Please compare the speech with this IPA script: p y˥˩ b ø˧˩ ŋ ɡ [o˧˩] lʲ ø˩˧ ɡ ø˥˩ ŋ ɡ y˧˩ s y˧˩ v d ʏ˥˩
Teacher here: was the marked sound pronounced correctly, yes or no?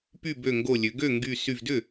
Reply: yes